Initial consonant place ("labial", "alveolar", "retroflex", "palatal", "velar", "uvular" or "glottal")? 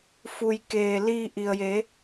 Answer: labial